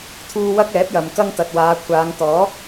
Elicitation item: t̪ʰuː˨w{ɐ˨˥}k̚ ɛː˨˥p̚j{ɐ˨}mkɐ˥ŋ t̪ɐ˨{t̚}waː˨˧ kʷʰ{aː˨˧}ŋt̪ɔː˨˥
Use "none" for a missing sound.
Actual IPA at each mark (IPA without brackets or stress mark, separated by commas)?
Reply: ɐ˧, ɐ˨, t̚, aː˨˧